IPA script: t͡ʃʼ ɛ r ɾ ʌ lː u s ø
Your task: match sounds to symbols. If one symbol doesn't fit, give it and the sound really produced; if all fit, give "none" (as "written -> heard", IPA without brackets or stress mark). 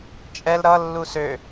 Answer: r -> l